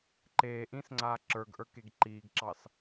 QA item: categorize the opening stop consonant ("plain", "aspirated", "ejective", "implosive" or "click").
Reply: click